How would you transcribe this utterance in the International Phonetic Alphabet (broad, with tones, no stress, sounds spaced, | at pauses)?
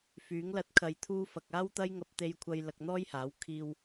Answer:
f yː˨˥ ŋ l ɐ˧ t̚ kʰ ɐ˨ j t̪ʰ uː˧ f ɐ˨ k̚ aː˥ w t̪ ɐ˥ j ŋ ɐ˧ p̚ t̪ e˧ j kʷʰ ɐ˧ j l ɐ˧ k̚ n̪ ɔː˥ j h aː˨˥ w kʰ iː˥ w